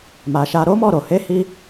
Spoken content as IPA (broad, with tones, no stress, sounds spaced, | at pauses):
m a˨ ʃ a˧ ɾ o˦ m ɔ˦˨ ɾ o˨ h e˨˦ h i˧